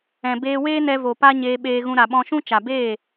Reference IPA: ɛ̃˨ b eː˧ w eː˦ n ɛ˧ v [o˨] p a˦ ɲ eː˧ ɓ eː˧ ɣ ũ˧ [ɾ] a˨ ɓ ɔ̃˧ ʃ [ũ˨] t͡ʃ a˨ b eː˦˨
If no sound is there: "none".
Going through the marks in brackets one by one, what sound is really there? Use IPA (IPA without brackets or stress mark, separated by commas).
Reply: o˨, ɾ, ũ˦